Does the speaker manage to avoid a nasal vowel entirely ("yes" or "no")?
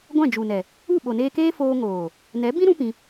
no